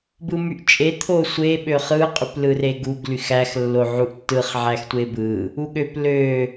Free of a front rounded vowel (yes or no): no